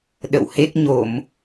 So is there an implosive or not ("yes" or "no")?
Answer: yes